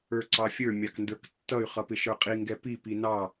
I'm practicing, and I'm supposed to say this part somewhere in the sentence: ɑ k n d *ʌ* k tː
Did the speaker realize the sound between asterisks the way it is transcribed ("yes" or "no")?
no